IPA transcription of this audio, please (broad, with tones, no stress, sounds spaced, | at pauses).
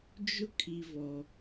d͡ʒ ʊ˦ kʰ i˨ v ɔ˨